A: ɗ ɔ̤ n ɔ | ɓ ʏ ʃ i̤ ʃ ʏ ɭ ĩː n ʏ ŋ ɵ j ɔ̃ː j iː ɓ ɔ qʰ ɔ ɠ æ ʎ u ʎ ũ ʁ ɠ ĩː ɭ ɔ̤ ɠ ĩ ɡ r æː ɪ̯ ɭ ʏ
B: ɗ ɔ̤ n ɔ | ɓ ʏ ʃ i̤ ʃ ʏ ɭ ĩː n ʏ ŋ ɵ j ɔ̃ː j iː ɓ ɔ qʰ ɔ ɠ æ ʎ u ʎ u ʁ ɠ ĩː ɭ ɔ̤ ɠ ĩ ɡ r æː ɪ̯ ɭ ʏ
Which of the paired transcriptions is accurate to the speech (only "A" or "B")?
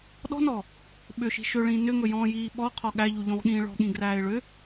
A